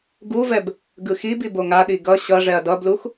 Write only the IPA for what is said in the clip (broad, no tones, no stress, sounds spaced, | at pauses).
ɡ u v ɛ b | ɡ ɯ x i b i b o ŋ a ɗ i ɡ ʌ ɕ ʌ ʐ ɛ ɐ̯ d ʌ b l u x